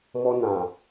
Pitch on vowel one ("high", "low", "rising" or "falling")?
high